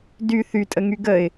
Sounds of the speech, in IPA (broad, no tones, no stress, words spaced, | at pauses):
dy θytʼəŋy ɡəɪ̯